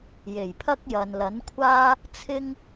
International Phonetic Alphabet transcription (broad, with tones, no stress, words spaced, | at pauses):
je˨˩jpʰɐ˥k̚jɐ˨n lɐ˨˥nkʷʰaː˥ | t͡sʰɪ˥ŋ